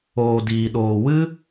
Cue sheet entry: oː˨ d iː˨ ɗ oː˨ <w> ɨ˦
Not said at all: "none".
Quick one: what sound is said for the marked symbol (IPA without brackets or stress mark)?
w